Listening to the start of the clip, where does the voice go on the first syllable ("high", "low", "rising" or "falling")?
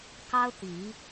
high